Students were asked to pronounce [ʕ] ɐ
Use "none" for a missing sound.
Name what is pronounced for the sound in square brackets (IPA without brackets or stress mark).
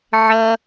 ʕ